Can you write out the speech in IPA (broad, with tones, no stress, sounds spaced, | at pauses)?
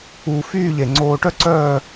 uː˧ f yː˥˧ ʎ e˧˩ ŋ͡ǀ oː˧ ʈ œ˥ ǀ œː˥˧